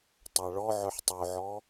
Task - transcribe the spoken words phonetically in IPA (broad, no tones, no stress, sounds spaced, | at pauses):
tˤ a ɭ ɔ ʕ œ ħ tˤ o ʕ ɔ